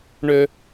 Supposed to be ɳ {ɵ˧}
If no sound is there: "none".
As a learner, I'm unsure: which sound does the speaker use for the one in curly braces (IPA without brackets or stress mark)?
ɵ˧